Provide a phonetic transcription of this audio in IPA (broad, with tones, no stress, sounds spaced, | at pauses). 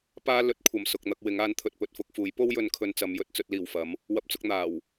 p aː˥ l ɵ˨˥ t̚ kʷʰ ɐ˨ m s ʊ˨ k̚ n̪ ɐ˧ k̚ w ɪ˨˥ ŋ aː˨˥ n t̪ʰ ɵ˨ t̚ p ɵ˧ t̚ f ʊ˧ k̚ f uː˨˥ j p o˥ w j ɵ˨˧ n kʰ ɵ˧ n t͡s ɐ˨˧ m j ɵ˧ t̚ t͡s ɵ˧ t̚ l iː˨˩ w f ɐ˨˥ m | w ɐ˧ p̚ t͡s ʊ˧ k̚ n̪ aː˨˩ w